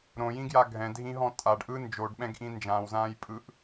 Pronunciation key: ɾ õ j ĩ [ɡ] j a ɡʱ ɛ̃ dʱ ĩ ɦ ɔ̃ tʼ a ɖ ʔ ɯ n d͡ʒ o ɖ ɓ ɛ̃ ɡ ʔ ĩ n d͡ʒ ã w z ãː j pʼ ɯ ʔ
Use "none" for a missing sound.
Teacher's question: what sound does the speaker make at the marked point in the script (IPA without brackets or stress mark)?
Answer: ɡ